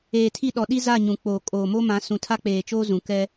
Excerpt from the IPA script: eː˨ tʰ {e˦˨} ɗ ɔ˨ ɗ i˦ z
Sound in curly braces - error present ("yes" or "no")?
yes